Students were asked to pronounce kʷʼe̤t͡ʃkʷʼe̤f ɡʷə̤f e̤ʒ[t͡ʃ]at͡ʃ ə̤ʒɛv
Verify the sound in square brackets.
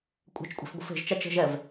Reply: correct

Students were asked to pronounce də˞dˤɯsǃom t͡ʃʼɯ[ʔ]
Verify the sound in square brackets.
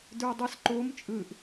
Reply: correct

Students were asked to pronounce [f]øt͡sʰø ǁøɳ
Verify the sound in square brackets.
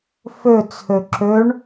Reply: correct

